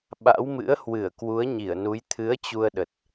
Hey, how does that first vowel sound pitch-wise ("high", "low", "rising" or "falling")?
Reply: rising